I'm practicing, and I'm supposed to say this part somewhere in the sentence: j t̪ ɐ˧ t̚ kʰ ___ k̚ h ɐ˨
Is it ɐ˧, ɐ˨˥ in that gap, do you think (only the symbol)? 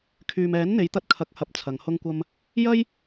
ɐ˨˥